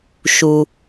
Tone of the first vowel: low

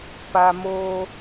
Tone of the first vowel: low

